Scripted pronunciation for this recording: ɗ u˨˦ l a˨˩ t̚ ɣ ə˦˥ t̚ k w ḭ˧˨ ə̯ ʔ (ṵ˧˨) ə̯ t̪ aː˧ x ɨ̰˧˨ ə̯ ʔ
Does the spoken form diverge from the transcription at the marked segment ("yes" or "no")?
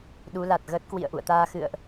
no